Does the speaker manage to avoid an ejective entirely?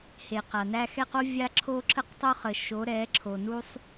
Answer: yes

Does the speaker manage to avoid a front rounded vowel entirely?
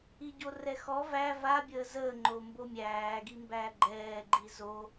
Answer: yes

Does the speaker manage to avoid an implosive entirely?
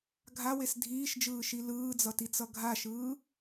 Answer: yes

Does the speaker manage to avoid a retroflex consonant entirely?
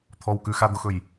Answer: yes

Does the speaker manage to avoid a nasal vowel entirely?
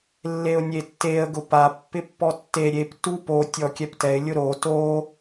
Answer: yes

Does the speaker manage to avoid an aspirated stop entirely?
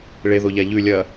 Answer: yes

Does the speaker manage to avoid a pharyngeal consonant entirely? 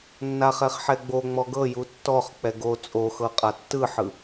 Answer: no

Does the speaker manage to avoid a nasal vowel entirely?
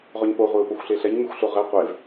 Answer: yes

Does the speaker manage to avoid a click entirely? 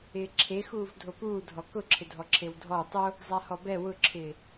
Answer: no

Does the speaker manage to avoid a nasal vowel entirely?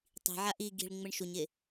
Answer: yes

